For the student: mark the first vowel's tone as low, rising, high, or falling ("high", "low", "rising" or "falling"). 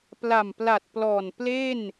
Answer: low